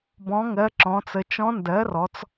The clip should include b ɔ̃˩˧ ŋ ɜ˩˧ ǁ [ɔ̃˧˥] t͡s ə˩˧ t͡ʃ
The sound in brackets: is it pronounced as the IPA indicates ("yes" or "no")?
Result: no